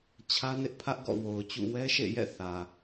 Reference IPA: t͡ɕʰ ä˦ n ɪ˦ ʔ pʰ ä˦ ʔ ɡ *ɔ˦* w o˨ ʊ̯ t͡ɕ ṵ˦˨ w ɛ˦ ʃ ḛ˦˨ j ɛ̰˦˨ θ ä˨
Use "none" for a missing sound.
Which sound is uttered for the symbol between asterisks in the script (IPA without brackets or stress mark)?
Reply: ɔ̰˦˨